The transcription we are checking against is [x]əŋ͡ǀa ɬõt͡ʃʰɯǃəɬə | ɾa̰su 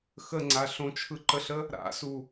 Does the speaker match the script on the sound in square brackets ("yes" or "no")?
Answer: yes